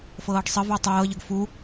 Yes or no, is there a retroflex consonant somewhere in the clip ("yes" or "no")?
yes